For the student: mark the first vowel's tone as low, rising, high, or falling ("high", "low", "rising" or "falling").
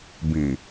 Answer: low